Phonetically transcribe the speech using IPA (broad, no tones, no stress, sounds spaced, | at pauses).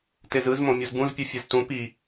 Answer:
t e z ɯ z m õ mʲ o z b ũ z pʲ ɯ fʲ ɛ z t ũ p i